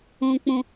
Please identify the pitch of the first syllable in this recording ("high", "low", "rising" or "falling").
low